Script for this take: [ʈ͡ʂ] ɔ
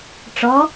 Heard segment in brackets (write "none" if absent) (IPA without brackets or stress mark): ʈ͡ʂ